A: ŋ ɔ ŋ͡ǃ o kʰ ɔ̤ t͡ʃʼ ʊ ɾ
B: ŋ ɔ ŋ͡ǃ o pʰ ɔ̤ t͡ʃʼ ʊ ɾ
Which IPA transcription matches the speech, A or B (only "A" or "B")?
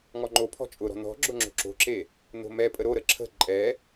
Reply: B